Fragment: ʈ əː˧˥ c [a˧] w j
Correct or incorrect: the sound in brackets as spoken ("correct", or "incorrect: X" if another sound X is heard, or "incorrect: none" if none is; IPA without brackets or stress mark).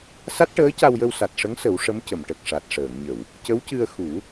correct